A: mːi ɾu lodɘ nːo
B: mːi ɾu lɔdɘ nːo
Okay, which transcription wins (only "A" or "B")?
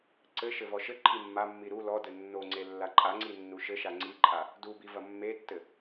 B